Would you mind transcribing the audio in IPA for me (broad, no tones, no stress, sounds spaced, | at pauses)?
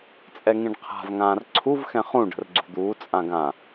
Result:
t͡sʼ ɛ ŋ ĩ ɖ qʰ a̤ v ŋ ãː r ǀʰ u v x ɛ̃ χ ũ ɖ ə̤ r ɡ͡ǀ ṳ d̪ uː t͡sʼ ã ɡ ã